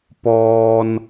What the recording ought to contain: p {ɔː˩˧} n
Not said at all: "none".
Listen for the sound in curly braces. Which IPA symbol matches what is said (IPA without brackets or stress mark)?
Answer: ɔː˧